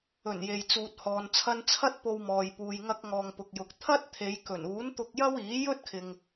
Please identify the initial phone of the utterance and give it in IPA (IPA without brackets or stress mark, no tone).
ɵ